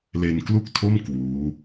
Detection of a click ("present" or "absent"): absent